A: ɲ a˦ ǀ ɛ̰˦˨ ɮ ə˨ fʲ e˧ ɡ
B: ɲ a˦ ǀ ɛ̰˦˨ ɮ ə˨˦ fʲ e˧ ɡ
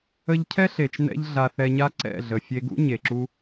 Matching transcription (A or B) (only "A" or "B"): A